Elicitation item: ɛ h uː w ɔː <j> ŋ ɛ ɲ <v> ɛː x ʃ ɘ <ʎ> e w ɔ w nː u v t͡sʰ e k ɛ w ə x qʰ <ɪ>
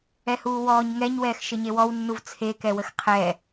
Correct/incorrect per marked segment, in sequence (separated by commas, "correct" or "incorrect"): incorrect, incorrect, incorrect, incorrect